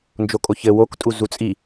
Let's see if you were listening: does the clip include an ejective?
yes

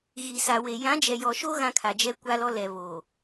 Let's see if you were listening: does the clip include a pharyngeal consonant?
no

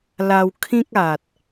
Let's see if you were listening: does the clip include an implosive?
no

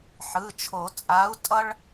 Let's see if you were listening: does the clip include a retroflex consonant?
yes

